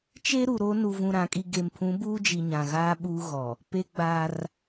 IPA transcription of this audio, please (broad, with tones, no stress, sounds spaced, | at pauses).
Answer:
t͡ʃ e˦ ɾ u˨ ɾ o˦ n u˦ v ũ˦ ɾ ã˨˦ kʼ i˦ ɡ e˨ m pʰ ũ˨˦ b uː˦ d͡ʒ i˨ ɲ ã˨ ɣ aː˦ ɓ uː˦ ɣ ɔ˨ | p e˦ ɡ͡b aː˦ r